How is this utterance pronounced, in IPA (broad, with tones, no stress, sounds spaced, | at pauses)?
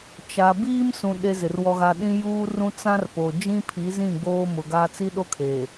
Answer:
t͡ʃ a˨ b iː˦ m s ũ˨ ɗ e˦ z ɪ˨ r w ɔ˦ ɣ a˦ ɗ ĩ˦ j uː˦ r ũ˦ t͡s ã˦ r p o˨ d͡ʒ ĩ˦ pʰ i˨˦ z ĩ˦˨ ɡ͡b oː˦ m ʊ˨ ɡ a˦ t͡s i˦ ɗ o˦ kʰ eː˨